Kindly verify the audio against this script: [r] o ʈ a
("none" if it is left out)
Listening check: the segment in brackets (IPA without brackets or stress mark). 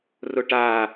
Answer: r